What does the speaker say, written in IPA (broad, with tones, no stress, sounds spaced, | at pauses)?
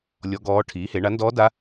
lʲ ɔ˦˥ ɡ ɔː˦˥ ʈʰ iː˨˥ h e˨˥ ɳ a˨˥ n d ɔː˦˥ d a˦˥